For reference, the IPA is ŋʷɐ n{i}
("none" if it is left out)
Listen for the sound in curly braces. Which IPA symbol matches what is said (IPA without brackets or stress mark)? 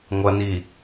i